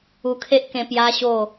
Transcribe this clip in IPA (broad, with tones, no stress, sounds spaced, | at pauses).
u˧ kʰ e˦ ʔ k ẽ˧ p j a˦ ɕ o˥˧